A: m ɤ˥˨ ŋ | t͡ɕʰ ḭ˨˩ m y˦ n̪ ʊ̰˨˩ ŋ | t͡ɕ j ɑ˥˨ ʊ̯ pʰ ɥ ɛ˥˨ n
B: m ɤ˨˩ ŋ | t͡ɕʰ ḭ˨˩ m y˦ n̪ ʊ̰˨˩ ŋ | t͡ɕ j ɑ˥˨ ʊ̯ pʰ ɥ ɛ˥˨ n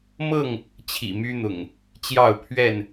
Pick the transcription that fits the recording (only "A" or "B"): A